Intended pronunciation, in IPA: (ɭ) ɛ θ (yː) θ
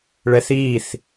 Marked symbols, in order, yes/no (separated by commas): yes, no